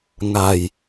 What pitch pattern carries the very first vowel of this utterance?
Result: low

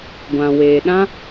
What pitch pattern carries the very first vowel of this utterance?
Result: low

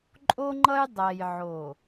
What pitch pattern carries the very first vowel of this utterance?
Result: high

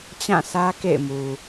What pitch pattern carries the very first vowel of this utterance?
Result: falling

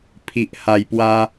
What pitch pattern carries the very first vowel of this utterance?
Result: low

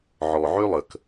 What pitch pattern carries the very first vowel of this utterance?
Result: low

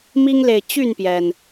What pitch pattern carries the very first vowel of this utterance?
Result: high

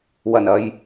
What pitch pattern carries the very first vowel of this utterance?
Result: low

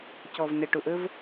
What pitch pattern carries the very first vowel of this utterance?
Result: low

